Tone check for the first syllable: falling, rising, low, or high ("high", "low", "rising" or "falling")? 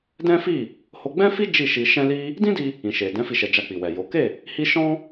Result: high